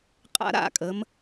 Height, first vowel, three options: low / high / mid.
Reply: low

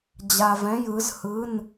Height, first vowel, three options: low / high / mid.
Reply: low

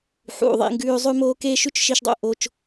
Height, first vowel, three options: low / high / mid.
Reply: high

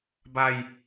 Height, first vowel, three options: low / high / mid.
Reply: low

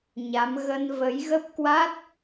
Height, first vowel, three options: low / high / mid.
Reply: low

